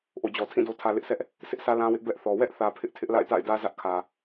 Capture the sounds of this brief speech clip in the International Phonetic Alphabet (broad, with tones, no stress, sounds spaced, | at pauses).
ʔ o̰˦˨ d͡ʑ ɔ˨ tʰ ĩ˦˨ d o˨ tʰ ä˨ l ɪ˦ ʔ sʰ ɛ˦ ʔ | s ɪ˦ ʔ s ä˦ l ã˦ w ɪ˦ ʔ b ɛ˦ ʔ θ ɔ˨ w ɛ˦ ʔ θ ä˨ pʰ ɪ˦ ʔ tʰ ɪ˦ ʔ l a̰˦˨ ɪ̯ t a̰˦˨ ɪ̯ d ä˦ z ä˦ ʔ kʰ ä˨